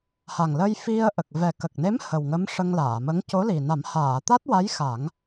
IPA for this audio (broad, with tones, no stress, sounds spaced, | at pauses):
h a˨˩ ŋ l ə˧ j f i˧ ə̯ ʔ ə˨˩ k̚ v ɛ˨˩ k ə˨˩ k̚ n e˧˥ m h ə˨˩ w ŋ ə˧˥ m ʂ ə˧ ŋ l aː˨˩˨ m ə˧˥ ŋ c o˧˥ l i˨˩ n a˨˩˦ m h aː˨˩˨ t̪ a˦˥ t̚ w a˧˥ j x a˨˩˦ ŋ